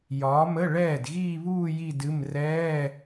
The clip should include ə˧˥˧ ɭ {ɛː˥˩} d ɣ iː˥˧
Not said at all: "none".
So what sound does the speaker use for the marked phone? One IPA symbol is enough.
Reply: ɛː˥˩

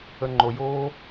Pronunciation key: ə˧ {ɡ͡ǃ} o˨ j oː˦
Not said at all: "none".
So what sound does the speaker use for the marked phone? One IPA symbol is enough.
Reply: ŋ͡ǃ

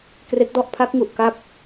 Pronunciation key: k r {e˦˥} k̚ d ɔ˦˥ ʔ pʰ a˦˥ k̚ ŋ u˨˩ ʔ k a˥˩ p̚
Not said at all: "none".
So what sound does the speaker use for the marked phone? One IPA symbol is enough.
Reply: e˦˥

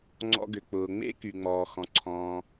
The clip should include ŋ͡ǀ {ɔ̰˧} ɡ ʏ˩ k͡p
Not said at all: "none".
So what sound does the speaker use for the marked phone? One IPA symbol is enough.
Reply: ɔ̰˧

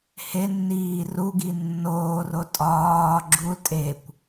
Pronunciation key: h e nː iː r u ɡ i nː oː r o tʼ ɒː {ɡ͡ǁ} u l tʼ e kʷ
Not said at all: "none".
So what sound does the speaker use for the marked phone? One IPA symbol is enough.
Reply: ɡ͡ǁ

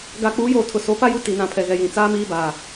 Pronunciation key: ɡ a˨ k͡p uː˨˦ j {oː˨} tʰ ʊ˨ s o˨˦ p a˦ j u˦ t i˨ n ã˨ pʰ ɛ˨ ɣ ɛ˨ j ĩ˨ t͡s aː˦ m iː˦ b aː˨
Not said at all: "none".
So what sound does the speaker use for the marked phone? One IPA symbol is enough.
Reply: oː˨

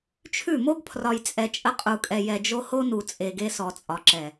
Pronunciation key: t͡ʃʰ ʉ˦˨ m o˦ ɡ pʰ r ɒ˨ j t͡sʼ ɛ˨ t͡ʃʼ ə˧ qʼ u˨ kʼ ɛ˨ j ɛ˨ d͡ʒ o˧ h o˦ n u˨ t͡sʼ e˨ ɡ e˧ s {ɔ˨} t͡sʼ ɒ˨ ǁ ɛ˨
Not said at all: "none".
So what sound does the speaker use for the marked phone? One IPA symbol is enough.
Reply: ɔ˨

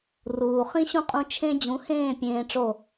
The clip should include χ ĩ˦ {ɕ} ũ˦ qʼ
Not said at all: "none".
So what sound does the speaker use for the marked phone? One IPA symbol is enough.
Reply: ɕ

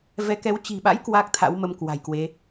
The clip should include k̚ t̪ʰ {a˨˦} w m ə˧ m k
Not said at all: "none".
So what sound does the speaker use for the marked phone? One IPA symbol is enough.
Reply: a̰˧˥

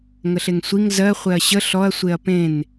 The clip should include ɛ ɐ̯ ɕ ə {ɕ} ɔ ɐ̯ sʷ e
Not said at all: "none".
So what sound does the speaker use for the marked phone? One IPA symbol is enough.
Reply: ɬ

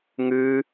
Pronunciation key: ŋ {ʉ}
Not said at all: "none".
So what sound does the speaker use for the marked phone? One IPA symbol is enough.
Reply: ʉ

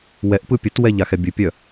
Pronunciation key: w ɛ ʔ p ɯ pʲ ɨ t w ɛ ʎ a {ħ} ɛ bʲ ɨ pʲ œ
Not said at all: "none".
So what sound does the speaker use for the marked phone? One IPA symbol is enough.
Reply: x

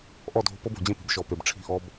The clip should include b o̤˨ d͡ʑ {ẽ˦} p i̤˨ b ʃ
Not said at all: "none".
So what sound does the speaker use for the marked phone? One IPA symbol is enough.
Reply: ẽ˦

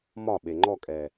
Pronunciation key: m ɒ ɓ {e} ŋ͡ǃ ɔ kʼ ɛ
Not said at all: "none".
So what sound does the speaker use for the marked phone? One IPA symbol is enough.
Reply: e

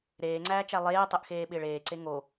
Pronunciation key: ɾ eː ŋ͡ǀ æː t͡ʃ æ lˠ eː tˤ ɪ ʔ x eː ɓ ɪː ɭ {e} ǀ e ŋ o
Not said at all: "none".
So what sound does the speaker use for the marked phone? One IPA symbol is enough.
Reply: eː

